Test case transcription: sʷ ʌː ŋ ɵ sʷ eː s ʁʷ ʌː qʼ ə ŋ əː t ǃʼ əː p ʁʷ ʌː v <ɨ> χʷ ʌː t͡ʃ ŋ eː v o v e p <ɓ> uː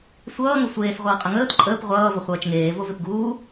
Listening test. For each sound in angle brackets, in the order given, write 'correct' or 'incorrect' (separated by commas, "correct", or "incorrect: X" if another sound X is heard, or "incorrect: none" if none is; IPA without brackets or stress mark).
incorrect: ə, incorrect: ɡ